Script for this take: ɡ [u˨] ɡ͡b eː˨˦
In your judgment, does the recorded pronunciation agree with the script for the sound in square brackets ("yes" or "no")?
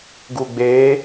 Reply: yes